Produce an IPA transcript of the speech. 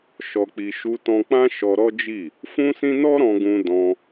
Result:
ʃ ɔ˧ k͡p i˧ ʃ u˧ t ɔ̃˧ k͡p ã˦ ʃ ɔ˧ ɾ ɔ˦ d͡ʒ i˦˨ | f ũ˦ s ĩ˦ n ɔ˦ ɾ ɔ̃˧ ɡ ũ˧ d ɔ̃˧

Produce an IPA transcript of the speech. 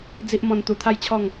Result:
d͡z i˦ ʔ m ɔ̃˧ n t̪ u˧ t̪ʰ a˥˧ j t͡ɕʰ ɔ˥˧ ŋ

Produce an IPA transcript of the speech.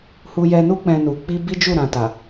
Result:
h u˧ j ɛ˧ n u˦ k͡p ɛ̃˧ n u˨ k͡p i˧ b i˦ d͡ʒ u˦˨ ɾ ã˨ t a˨

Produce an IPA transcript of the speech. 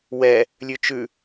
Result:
w ɛ | lʲ ʉ t͡ʃ ʉ

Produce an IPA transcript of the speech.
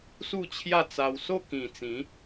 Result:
s u˥˧ t͡ɕʰ j a˥˧ t͡s a˧ w s o˥˧ k ĩ˨˩ t͡s ĩ˨˦

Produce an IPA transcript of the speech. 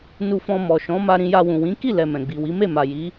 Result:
n u˧ f ɔ̃˧ m ɔ˨ ʃ ɔ̃˨˦ m a˧ ɾ ĩ˧ j a˧ w ũ˨ w ĩ˨˦ k i˦˨ l ɛ˨ m ɛ̃˨ ɡ͡b i˨ w i˨˦ m e˦˨ m a˨ j i˨˦

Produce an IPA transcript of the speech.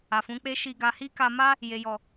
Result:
a˨ f ũ˨˦ k͡p e˦ ʃ i˧ ɡ a˧ h i˦ k a˧ m a˦ | j e˨ j ɔ˨

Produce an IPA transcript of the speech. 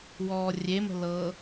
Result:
w ɔː rʲ e m ə̤ l ɤ

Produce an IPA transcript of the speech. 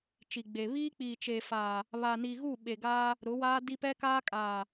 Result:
t͡ʃ i˨ ɡ͡b e˨ β iː˦ k͡p iː˨ t͡ʃ eː˨ f aː˨ | β a˨ n i˨ ɣ u˦˨ ɓ e˨ ɡ aː˦ | ɾ ʊ˨˦ w aː˦ d i˦ p ɛ˦ k aː˦ kʼ aː˨

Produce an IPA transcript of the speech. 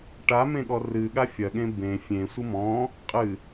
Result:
ʈ a m ẽ ɠ ɔ r ɨ ɠ a fʲ ɐ ɠ ẽ b ẽ fʲ ẽ sʷ ɨ m ɔ̃ | qʼ ɨ

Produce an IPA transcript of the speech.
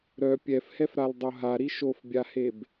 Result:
ɾ œ pʲ ɛ f h ɛ f ɾ a l dˤ o ɦ a ɾ i ʃ o f bʲ a h e b

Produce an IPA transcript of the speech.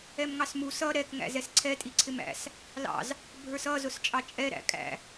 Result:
ɛ m ŋ ɑ s m u s ʌ ɾ ɛ k ŋ æ̰ z ɛ s ǀʰ ɛ tʼ i ǀʰ ɪ m æ̰ s | l ɑ̰ z | bʱ ə˞ s ʌ z ʊ s t͡ʃʼ ɑ t͡ʃʼ ɛ ɾ æ̰ kʼ æ̰

